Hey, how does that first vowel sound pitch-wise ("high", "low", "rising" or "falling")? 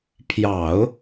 low